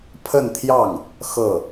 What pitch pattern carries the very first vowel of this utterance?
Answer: falling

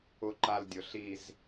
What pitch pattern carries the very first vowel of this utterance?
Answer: high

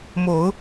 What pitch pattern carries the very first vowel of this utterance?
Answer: rising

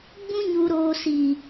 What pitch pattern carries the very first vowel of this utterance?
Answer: high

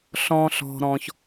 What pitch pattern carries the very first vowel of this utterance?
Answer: low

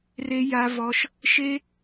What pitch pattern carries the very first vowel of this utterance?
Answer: high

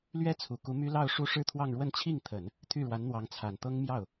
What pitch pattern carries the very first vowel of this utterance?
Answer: high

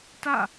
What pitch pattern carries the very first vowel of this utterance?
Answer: falling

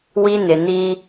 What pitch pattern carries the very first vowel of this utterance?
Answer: high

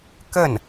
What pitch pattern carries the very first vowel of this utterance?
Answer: falling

